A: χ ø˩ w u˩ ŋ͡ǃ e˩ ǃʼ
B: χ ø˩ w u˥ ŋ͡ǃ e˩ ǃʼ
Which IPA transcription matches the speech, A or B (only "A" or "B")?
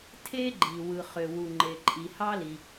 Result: A